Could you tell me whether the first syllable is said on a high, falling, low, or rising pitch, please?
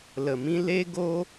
low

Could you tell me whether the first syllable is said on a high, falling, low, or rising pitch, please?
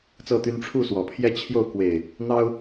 falling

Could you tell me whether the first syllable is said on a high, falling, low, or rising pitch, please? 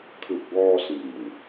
low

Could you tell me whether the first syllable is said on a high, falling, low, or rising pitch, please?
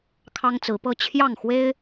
high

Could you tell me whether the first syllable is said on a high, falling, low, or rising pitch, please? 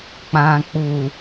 low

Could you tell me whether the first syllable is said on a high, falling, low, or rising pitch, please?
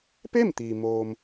falling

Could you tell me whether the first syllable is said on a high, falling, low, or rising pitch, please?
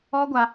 high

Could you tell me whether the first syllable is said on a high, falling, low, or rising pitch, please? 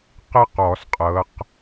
high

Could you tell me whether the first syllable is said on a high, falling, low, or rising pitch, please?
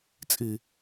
low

